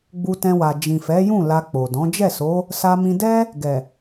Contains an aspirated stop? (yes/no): no